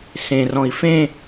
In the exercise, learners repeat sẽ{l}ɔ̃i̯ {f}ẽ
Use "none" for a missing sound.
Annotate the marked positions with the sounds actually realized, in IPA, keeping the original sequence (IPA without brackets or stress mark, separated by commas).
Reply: r, f